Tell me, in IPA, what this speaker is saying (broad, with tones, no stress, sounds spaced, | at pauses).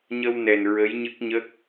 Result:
ɲ ə˧ w n ɛ˨˩ n ɹ ə˧˥ j ɲ ɨ˦˥ k̚ ɲ ə˦˥ k̚